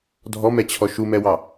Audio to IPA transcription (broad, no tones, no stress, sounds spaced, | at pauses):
dʱ ɔ m ɛ t͡ɕʰ ɔ ʃ u m ɛ w ɑ